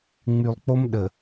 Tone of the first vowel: low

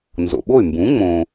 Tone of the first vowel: low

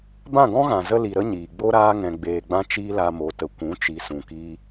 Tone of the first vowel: falling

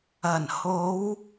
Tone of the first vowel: low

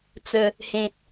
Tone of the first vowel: low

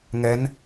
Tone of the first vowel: rising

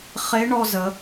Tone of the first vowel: rising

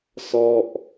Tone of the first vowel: falling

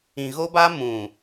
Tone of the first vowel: low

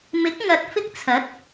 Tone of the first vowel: rising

